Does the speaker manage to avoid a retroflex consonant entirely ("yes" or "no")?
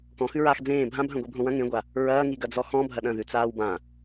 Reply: yes